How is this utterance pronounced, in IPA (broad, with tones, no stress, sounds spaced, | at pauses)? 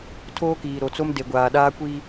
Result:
tʰ oː˦ k iː˨ ɾ o˨ t͡s o˦ m d e˨ ɡʷ aː˨ ɗ aː˦ kʷ iː˦